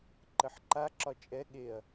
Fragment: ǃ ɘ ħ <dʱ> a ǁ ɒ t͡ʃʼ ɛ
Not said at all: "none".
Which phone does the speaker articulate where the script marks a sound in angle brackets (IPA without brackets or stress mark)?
ǃ